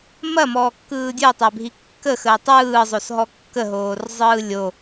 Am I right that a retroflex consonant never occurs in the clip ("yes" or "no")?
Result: yes